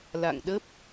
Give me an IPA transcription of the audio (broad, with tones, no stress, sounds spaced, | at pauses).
l a̰˧˨ ŋ ɗ ə˦˥ p̚